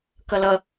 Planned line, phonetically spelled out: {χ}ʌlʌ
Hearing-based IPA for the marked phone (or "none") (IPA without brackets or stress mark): k